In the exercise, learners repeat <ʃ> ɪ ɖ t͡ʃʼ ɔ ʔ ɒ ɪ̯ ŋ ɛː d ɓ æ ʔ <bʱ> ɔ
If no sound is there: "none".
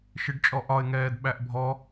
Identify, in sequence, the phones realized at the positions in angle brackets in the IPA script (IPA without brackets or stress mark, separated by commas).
ʃ, bʱ